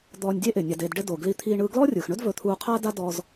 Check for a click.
absent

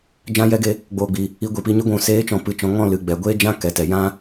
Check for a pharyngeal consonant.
absent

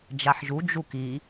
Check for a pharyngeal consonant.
present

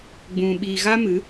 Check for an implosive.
present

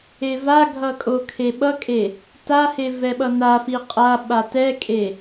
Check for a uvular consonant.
present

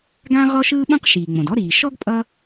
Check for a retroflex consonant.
absent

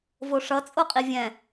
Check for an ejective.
present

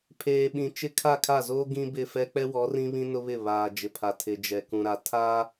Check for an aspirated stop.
present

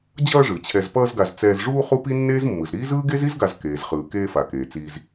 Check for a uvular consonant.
present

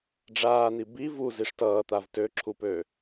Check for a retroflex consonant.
present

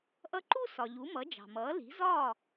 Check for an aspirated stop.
absent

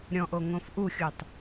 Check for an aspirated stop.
absent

